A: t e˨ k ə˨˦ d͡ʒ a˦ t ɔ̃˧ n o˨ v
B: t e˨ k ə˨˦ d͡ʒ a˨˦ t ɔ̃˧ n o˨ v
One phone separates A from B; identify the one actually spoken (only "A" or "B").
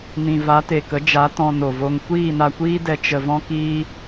B